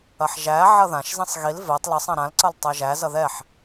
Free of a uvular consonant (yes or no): yes